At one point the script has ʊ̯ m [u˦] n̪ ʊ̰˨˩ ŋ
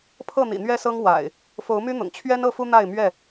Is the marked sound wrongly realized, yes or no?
yes